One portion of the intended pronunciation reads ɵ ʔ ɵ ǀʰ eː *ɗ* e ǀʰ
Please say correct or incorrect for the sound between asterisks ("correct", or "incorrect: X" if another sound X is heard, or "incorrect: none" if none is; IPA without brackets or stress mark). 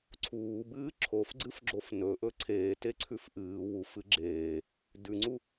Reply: incorrect: t